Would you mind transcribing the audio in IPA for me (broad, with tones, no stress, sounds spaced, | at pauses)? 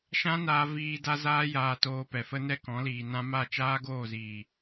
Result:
ʃ ã˦ n aː˧ v iː˧ d a˦ z aː˦ j aː˧ t oː˧ p ɛ˨ f ə˦ n ɛ˦ k ɔ̃˨˦ l iː˨ n ã˦ m a˦˨ t͡ʃ aː˦ ɡ oː˦˨ z iː˨